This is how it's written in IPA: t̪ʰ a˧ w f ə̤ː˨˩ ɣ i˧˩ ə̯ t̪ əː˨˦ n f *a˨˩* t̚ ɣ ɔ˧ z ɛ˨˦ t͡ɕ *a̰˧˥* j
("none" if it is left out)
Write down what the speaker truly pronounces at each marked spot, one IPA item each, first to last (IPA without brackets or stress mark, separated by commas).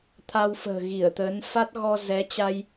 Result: a˦˥, a˧